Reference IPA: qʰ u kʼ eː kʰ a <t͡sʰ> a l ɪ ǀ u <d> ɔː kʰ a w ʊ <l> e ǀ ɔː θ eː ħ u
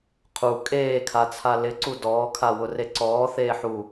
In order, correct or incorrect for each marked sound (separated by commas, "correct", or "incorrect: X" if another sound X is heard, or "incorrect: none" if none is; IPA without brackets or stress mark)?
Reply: correct, correct, incorrect: r